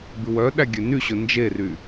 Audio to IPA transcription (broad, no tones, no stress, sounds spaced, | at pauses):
b ʉ w œ ɗ æ ɡʲ ø n y ɕ ɵ n d͡ʒ e r y